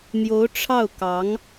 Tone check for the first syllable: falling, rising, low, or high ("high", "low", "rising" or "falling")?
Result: rising